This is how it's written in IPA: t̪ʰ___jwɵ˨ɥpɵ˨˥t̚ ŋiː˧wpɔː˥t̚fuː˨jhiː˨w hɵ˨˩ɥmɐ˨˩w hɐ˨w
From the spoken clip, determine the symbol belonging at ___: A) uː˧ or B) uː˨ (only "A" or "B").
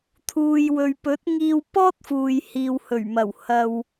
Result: B